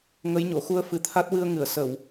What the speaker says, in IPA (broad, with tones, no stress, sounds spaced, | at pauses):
ŋ ə˧˥ j ɲ o˨˩˨ x u˧ ə̯ f ɨ˨˩ t̪ʰ a˦˥ t̚ w ɨ˧ ə̯ ŋ ɨ˨˩˨ ə̯ s ə˨˩˨ w